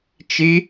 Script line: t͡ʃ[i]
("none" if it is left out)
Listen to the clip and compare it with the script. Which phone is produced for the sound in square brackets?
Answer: i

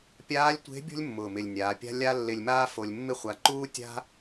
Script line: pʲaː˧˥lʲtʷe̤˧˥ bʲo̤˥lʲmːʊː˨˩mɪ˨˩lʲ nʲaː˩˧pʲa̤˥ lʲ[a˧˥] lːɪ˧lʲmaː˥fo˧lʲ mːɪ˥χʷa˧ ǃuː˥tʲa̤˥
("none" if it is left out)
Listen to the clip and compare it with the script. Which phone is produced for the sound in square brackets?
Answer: a˥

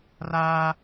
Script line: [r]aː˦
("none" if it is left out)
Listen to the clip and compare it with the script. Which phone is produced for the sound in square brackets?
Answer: r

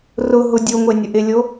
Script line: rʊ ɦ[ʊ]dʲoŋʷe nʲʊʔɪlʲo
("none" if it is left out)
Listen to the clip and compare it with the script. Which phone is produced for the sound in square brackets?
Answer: ʊ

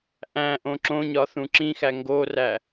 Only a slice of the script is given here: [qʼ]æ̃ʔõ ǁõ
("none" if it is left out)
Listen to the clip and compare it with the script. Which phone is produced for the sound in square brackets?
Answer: ʔ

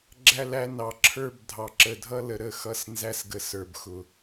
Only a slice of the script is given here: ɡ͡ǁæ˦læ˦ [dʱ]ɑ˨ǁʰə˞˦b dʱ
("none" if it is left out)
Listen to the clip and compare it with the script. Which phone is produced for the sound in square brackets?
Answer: n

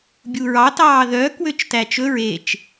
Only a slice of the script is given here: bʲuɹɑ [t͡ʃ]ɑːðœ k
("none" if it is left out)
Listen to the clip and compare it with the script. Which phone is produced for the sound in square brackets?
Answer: t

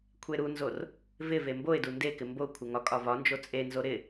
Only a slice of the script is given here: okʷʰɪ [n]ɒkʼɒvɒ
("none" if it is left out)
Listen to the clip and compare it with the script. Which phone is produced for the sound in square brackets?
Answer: ŋ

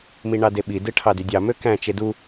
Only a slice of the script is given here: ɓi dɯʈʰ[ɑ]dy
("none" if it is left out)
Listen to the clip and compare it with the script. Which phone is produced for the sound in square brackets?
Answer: ɑ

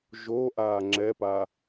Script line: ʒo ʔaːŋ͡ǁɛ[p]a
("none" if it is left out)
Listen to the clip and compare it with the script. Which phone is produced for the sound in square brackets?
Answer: p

